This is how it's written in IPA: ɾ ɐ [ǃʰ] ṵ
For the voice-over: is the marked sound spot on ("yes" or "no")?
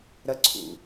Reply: no